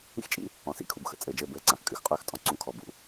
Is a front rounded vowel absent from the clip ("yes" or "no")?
yes